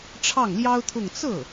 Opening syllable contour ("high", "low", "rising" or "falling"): falling